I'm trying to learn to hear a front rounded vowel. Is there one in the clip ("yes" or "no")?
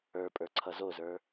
no